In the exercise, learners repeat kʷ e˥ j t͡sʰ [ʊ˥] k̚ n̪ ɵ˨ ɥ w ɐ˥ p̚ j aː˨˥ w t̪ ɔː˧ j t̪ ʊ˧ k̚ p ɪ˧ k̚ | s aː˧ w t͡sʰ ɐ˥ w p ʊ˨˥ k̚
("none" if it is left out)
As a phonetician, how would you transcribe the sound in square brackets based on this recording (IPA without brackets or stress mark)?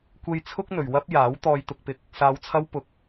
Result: ʊ˥